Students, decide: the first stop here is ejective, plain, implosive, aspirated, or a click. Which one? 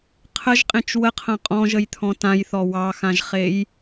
aspirated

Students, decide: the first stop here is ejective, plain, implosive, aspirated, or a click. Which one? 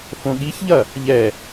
implosive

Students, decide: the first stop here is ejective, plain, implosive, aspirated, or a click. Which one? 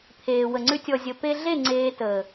aspirated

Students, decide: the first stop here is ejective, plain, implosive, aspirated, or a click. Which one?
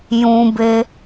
plain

